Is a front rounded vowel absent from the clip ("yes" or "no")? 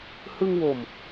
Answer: yes